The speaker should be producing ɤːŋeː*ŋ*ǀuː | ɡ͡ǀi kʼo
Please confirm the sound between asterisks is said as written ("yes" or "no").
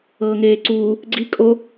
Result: no